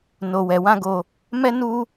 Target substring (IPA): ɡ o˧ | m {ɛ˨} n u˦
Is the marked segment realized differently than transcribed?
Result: yes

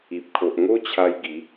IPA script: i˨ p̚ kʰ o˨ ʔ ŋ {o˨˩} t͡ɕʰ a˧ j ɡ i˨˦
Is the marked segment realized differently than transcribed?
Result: yes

